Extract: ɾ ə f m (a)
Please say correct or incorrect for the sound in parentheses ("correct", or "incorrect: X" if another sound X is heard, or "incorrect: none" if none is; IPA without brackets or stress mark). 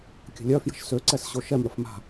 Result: incorrect: a̤